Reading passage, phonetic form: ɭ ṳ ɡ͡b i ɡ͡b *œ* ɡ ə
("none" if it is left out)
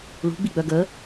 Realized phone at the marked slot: œ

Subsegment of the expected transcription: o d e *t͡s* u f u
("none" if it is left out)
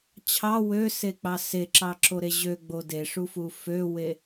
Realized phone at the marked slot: ʂ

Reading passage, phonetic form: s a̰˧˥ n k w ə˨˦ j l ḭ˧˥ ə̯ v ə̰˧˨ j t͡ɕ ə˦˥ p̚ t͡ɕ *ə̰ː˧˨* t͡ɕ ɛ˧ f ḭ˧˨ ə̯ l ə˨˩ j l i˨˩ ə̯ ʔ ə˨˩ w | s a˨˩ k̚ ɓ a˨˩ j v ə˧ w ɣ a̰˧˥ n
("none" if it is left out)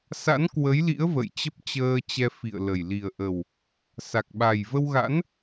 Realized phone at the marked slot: əː˧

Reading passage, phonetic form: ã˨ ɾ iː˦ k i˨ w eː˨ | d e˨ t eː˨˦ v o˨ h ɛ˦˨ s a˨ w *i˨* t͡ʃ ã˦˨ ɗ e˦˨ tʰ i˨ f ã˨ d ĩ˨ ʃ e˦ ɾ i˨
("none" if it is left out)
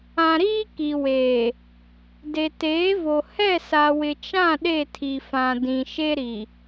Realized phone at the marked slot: ɪ˨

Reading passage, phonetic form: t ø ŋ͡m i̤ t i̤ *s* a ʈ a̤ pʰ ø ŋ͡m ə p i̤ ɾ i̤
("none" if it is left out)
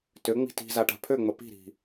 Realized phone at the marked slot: z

